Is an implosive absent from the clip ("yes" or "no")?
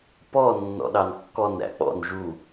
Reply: no